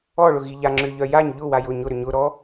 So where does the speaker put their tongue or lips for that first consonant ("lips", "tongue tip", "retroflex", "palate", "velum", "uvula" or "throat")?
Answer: retroflex